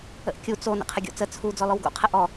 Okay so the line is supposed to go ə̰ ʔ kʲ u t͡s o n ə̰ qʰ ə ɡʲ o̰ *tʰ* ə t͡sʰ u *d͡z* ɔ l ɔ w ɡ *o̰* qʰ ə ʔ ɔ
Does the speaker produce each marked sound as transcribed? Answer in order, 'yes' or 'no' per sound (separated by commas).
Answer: no, yes, yes